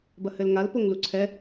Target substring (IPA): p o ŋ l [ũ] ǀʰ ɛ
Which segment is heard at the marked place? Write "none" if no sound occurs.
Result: u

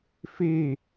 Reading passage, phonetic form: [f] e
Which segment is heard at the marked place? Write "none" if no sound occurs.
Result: f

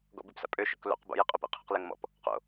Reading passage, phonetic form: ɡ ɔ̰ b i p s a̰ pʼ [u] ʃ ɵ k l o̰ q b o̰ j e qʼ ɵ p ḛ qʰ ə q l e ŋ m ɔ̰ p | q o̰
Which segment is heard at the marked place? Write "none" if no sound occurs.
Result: ø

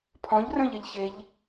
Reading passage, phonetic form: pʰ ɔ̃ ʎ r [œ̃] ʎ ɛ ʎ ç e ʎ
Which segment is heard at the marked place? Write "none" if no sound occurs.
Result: œ̃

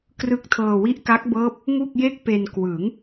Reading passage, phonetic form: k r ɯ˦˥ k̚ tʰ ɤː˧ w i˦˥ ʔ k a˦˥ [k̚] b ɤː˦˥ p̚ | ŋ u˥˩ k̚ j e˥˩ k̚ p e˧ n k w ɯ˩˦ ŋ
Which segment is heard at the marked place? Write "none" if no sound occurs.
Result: k̚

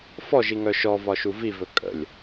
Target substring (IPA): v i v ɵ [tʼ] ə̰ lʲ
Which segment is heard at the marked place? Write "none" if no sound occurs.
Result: kʼ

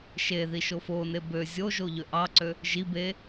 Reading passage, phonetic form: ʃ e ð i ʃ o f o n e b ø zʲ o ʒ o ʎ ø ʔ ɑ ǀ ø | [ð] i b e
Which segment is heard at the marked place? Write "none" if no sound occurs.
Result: ʒ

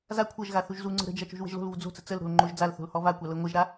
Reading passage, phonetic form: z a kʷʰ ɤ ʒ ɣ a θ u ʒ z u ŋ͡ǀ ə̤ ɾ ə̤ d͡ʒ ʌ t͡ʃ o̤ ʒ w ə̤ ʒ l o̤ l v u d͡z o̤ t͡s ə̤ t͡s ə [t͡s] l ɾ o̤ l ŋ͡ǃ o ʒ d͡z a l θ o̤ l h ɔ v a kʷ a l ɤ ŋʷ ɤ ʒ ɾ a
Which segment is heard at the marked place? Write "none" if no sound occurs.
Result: none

